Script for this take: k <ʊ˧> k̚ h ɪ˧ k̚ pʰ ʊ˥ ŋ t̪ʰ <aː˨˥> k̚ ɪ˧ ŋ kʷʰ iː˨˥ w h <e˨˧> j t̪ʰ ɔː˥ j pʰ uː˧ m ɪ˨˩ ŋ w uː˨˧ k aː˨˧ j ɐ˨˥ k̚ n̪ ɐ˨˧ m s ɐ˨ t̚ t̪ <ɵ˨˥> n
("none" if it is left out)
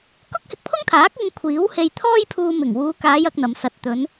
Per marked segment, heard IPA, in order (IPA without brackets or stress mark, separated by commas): ʊ˥, aː˨˥, e˧, ɵ˨˧